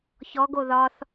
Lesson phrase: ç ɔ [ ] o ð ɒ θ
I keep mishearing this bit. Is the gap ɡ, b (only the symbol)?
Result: ɡ